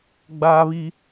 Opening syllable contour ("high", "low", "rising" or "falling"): high